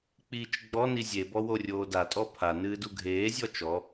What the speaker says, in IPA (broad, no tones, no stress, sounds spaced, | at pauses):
k͡p iː t͡ʃ ɡ͡b ɔ n i zʲ e b ɔ w o rʲ oː d a tʼ ɔ pʰ a n ɨː d u ɡʱ eː zʲ ɔ t͡ʃ ɔ